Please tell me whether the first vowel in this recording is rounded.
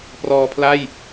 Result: yes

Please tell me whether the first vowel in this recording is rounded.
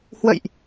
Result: no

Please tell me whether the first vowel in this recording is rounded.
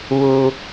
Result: yes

